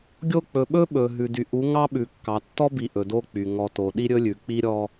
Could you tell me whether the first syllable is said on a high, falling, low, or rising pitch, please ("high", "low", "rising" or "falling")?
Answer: falling